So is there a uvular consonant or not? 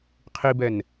yes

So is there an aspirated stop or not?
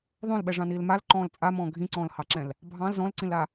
no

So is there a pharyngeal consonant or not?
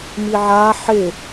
yes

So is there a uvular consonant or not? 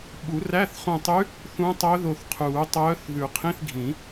yes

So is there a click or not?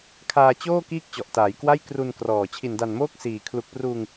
no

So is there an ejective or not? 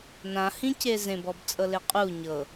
yes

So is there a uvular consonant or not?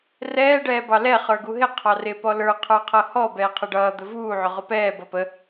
yes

